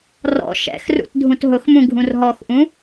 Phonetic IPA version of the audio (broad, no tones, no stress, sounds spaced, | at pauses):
r ɔ̰ ʃ ɛ̰ x r ṵ t dʱ ũ t ɦ ʊ x m ũ ɡʱ ũ r ɦ ɔ x ʔ ũ